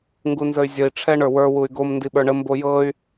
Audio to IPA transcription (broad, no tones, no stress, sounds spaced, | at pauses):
ŋ ɡ u n z ə y̯ zʲ ə i̯ ʈ͡ʂʰ ɛ ɳ ə˞ w ə˞ w u y̯ ɡ o m n d i ɓ ə˞ ɳ ə m b o j ɤ y̯